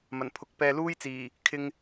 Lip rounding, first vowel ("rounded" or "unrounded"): unrounded